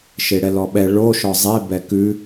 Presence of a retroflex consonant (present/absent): present